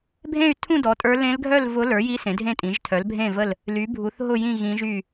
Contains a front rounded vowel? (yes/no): yes